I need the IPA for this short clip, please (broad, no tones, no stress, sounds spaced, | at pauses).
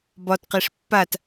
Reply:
b ɒ t q e ʂ pː a t